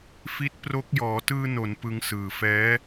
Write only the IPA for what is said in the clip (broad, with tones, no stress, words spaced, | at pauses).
fi˦˥t̚pro˦˥k̚ jɔː˩˦tɯː˧no˩˦n pɯ˧ŋsɯː˨˩fɛː˦˥